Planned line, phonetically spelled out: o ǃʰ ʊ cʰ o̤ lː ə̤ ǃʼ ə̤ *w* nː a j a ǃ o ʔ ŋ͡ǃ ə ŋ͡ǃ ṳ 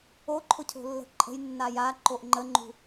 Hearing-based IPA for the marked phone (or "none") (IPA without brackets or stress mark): j